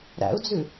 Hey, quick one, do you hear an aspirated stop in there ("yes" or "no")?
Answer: no